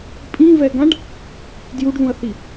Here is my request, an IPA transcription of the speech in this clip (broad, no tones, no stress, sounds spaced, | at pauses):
pʼ ĩ v ɛ ɡ ã ɖ | d j u ɖ ð ũ ɐ̯ θ i